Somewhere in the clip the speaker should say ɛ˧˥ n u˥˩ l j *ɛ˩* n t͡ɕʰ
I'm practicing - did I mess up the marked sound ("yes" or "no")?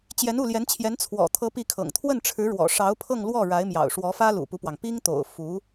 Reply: yes